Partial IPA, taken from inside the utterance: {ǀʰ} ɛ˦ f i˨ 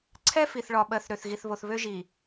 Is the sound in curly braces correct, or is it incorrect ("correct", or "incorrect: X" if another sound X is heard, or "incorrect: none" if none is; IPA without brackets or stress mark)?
correct